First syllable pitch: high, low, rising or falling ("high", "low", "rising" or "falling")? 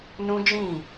high